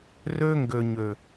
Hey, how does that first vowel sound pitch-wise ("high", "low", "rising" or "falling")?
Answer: high